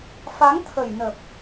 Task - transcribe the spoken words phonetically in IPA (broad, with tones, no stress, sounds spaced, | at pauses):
f a˨˦ ŋ t̪ʰ ə˨˩ j n ə˨˩ p̚